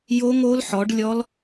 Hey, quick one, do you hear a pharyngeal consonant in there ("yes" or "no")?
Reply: yes